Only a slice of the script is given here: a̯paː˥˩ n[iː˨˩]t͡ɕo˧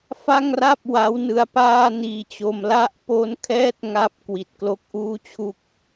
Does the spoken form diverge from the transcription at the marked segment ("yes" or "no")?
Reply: yes